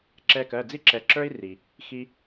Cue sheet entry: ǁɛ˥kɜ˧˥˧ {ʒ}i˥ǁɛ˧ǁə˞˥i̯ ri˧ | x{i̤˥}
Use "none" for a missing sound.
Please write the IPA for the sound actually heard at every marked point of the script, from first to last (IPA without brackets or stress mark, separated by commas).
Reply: d͡z, i˥